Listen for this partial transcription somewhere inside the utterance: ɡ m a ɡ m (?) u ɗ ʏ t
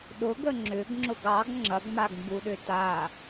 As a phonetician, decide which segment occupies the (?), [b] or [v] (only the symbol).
b